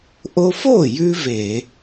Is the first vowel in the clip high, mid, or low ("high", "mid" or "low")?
mid